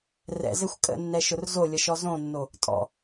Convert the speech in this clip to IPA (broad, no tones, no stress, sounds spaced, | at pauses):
r ɛ̰ z ɘ xʷ kʼ ə̰ nː ɛ ʃ ʊ r z o lʲ ə ʃ ɔ z õ nː o | tʼ ɔ̰